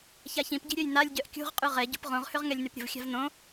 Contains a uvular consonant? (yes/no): yes